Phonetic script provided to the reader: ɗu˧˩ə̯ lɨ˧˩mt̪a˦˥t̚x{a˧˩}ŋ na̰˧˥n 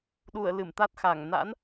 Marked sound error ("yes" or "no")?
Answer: no